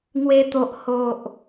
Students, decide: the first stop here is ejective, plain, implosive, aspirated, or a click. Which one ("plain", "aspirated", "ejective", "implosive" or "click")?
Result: plain